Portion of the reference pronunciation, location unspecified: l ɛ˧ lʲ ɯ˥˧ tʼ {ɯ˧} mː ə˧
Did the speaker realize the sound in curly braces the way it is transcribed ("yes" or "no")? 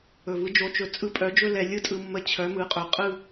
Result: yes